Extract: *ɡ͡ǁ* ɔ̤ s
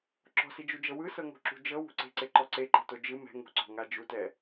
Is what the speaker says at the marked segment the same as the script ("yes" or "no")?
no